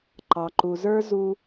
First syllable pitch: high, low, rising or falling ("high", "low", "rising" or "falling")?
low